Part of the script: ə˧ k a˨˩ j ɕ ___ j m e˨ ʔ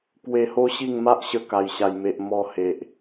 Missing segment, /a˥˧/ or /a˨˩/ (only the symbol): a˨˩